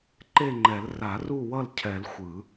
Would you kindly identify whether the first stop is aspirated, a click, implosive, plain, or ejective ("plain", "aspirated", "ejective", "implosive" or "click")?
click